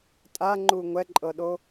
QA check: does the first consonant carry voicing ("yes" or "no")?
no